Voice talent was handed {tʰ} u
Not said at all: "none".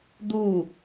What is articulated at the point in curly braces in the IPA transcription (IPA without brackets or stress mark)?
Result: d̪